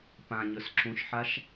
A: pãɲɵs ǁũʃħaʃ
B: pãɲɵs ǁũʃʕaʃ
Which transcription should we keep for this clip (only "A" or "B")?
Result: A